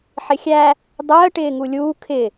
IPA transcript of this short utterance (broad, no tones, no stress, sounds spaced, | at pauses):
ħ ɪ xʲ æ | dˤ əː ʈ ɪː ŋ u lʲ uː kʰ ɪ